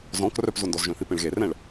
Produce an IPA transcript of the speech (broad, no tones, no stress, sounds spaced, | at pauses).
z ɔ̃ k r œ p z o n d ɔ z ʒ œ̃ θ i p ẽ ɭ ɣ e r ɛ̃ ɭ